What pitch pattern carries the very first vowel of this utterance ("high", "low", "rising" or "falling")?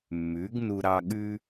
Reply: rising